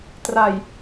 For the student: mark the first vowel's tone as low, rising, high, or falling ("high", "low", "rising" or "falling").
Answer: low